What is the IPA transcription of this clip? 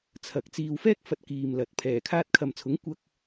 t͡sʰ ɐ˨˥ k̚ t͡s iː˧ w f ɛː˥ k̚ f ɐ˨ t̚ k iː˧ m l ɐ˨˥ t̚ pʰ ɛː˨˩ kʰ aː˧ t̚ kʰ ɐ˨ m t͡sʰ ʊ˨˥ ŋ kʷ ɐ˥ k̚

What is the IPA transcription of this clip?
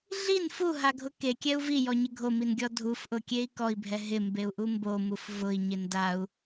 ɮ i n f u ɦ a ɡʱ ʊ k e kʲ ɛ u̯ v i j ɔ ɲ ɪ ɡʱ o m i n ɡʲ ɔ dʱ u f ʔ ʊ kʲ e i̯ k ɔ i̯ bʱ ɛ ɦ ɪ m b e u̯ ʔ u m b o m u f v ʊ i̯ ɲ ɪ n d a u̯

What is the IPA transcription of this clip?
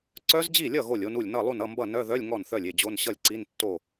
ǀ œ˦˥ z d͡ʑ i˥˩ lʲ ʌ˥˩ ɣ o˥˩ lʲ o˦˥ n u˥˩ lʲ n ʌ˥˩ lˠ u˥˩ n ʌ˧˥˧ m b ʌ˥˩ n œ˧˥˧ ð œ˧˥˧ lʲ ŋ ɔ˥˩ n θ œ˥˩ lʲ e˥˩ d͡ʑ o˧˥˧ n ɕ ʌ˥˩ lʲ ǀ i˧˥˧ n tː o˥˩

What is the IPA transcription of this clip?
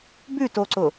b ʉ t o ǀ ʊ

